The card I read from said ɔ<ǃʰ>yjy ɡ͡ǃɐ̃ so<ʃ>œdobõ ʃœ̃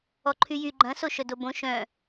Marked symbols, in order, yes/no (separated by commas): yes, yes